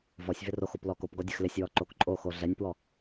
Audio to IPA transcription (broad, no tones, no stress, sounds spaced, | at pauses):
v ɔ sʲ v ɪ r o x o p l ɔ k o p ɡ ɔ dʲ ə x l ɪ sʲ w ɔ ǃ o k ǃʼ o x o ɮ ɛ nʲ p w ɔ